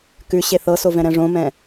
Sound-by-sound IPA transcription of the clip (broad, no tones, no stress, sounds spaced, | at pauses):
k ʉ ɕ e θ ɤ s o v ɛ̃ ɾ ɛ̃ ʐ õ m ɛ̃